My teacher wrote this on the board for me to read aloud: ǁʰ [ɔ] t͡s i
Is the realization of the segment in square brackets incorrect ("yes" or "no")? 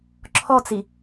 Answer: no